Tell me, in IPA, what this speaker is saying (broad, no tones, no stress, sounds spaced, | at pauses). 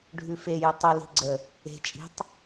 ɖʱ ʉ f e j ɵ tˤ ɵ l i̤ ɡ͡ǀ ə | e̤ t͡ʃʼ i̤ tˤ